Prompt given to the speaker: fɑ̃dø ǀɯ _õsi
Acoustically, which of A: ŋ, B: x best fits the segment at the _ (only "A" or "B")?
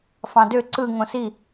A